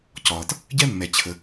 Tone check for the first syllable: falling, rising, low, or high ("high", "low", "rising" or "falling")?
low